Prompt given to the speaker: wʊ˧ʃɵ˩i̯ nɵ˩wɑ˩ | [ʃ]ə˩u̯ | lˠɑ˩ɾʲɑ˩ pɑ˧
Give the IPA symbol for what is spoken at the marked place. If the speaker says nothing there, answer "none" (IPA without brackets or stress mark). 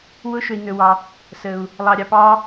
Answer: s